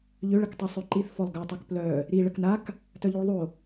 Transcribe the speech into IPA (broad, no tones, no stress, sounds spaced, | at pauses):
ʎ ø ɭ ə k tˤ o sˤ ø ǃ i θ f ɔ lˠ ɡ œ tˤ o k p l œ | ɾ i ɭ ə k n a k | t œ ʎ y ɭ ðˤ o